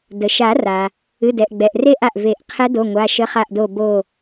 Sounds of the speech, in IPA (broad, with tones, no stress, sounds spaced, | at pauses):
d ə˩ ʃ a˨˩˦ r a˩ | ɨ˩˧˩ d ɛ˩ ʔ ɡ͡b ɛ˩ ʔ r e˦˨ ʔ a˩ ʔ v e˨˩˦ ʔ qʰ ɛ˧˥ d o˩˧˩ ŋʷ a˩˧˩ ʃ ə˧˥ χ a˦˨ ʔ d o˦˨ b o˦˨